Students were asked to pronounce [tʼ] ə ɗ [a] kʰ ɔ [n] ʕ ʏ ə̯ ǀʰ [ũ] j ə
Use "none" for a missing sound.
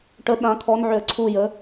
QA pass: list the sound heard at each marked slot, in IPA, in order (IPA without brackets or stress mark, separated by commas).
ʈ, ã, n, u